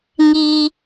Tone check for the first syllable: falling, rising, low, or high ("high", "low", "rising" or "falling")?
high